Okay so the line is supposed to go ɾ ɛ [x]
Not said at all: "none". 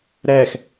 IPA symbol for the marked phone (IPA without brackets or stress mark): x